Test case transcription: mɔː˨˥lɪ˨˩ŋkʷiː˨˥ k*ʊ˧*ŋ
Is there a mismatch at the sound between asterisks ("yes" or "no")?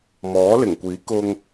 no